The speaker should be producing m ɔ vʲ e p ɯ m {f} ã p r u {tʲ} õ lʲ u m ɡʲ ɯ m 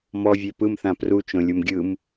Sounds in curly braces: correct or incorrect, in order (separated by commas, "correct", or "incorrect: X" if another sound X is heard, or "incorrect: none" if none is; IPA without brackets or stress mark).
incorrect: θ, incorrect: t͡ʃ